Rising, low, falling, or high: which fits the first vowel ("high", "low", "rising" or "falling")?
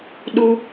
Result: high